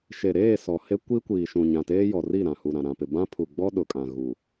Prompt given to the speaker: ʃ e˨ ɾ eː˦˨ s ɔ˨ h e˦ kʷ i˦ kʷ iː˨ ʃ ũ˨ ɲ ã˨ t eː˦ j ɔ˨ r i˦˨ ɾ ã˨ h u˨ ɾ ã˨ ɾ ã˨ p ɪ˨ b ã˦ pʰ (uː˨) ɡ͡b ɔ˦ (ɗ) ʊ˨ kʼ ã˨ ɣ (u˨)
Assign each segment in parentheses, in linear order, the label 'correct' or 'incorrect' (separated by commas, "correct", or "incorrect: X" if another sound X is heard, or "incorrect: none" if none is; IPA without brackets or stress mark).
incorrect: u˨, correct, correct